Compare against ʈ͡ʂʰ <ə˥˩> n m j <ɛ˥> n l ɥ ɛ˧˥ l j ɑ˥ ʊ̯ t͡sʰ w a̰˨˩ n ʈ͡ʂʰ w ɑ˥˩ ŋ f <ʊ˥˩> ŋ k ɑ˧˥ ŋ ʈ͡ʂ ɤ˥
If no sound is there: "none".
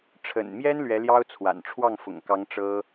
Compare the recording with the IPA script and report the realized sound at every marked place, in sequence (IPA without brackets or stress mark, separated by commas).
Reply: ə̰˨˩, ɛ˥, ʊ̰˨˩